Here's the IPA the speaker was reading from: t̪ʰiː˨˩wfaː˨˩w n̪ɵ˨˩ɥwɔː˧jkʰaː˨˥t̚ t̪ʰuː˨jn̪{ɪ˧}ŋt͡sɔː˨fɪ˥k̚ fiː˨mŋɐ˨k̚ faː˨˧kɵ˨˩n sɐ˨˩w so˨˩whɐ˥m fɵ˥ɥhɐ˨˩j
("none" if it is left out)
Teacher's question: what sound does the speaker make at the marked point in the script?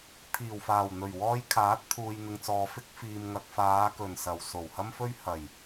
ɪ˨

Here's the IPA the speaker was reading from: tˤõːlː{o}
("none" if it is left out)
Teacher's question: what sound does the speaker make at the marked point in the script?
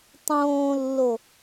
o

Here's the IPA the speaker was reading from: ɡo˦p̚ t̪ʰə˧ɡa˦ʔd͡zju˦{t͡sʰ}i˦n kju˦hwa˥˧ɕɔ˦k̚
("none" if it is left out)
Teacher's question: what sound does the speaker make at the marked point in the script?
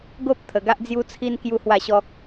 t͡sʰ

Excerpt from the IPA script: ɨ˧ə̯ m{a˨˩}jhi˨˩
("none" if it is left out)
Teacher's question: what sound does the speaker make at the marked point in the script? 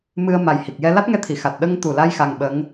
a˨˩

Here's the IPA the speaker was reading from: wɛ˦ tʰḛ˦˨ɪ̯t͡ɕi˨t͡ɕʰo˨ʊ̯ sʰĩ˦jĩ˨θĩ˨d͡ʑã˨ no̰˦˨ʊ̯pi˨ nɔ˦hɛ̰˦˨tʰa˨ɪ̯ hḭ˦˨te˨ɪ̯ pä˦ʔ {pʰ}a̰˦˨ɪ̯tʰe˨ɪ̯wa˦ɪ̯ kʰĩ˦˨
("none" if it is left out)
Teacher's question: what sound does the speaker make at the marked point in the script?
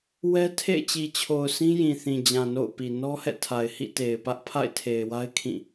pʰ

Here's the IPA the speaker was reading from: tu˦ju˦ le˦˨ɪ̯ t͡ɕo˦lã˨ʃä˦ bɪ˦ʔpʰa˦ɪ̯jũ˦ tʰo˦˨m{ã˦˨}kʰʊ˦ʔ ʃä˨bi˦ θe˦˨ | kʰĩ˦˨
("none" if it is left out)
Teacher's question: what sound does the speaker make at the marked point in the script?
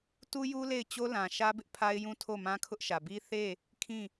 ã˦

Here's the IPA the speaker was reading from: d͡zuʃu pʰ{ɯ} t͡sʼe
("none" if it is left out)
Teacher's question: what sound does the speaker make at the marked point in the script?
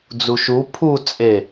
u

